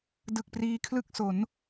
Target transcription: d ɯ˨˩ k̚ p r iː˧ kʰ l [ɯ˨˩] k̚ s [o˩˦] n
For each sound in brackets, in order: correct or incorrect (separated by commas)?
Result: incorrect, correct